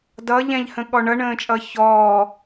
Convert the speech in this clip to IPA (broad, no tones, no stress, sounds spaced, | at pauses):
d ʌ ʎ ɛ̃ ʎ h ə̃ ɠ ɔ ɳ ʌ ɳ ə̃ː t͡ʃʼ ʌ ç ɔː